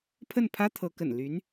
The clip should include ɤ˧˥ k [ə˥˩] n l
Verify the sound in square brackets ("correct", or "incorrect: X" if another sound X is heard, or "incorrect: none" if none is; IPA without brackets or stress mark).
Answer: incorrect: ə̰˨˩